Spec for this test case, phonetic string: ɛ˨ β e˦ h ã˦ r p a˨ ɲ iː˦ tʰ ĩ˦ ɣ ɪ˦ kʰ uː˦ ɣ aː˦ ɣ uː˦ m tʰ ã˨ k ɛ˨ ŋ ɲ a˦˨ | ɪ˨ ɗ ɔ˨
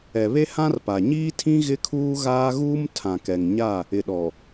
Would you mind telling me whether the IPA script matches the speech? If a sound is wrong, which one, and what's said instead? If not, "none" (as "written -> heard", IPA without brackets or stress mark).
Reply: none